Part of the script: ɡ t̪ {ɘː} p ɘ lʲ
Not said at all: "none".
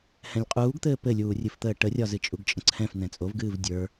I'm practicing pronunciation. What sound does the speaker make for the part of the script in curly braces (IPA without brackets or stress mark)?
ɘː